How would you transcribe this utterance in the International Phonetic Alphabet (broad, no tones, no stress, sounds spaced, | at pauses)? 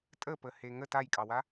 tʼ ə p ə h e ŋ ə t a j kʼ ɑ w a